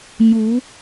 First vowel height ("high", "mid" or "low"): high